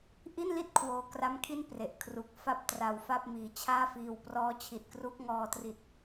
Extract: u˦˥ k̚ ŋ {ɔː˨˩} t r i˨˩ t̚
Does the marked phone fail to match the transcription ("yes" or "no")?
yes